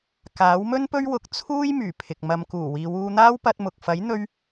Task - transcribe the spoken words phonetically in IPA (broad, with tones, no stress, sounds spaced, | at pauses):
k aː˨˥ w m ɵ˥ n p ɵ˥ ɥ w ʊ˧ k̚ t͡sʰ uː˥ j m yː˨˩ pʰ ɪ˨ k̚ m ɐ˨ m k uː˨˩ w iː˨ w uː˧ n̪ aː˥ w p ɐ˧ t̚ m ʊ˨ k̚ f ɐ˨˥ j n̪ ɵ˧ ɥ